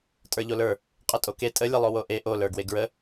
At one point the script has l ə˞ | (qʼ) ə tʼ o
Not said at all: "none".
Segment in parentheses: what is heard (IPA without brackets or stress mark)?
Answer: qʼ